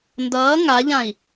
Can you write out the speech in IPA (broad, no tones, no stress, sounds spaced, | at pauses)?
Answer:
n d ʌː ŋ a ʎ ã i̯